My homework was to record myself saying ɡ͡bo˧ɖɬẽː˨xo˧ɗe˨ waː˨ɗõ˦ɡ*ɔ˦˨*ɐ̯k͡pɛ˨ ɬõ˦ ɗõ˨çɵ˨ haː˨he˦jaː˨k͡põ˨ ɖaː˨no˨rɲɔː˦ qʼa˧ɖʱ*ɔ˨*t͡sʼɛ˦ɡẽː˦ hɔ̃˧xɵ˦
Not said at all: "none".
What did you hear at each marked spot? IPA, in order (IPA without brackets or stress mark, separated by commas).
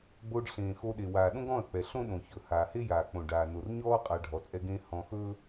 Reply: ɔ̃˦˨, ɔ˨